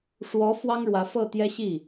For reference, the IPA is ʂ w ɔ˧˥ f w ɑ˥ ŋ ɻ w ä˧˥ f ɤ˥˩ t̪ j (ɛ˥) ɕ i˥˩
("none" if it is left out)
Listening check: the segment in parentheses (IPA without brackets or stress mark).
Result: ɛ˥